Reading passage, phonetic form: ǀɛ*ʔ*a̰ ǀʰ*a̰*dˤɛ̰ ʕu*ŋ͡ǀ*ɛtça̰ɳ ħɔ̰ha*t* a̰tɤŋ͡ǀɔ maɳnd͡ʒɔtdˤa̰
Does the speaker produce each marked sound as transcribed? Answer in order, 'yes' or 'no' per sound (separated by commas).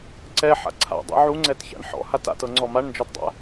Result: no, yes, yes, yes